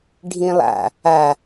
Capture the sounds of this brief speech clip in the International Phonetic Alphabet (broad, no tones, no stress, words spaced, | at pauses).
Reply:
ɖʱĩlˠa̰ | a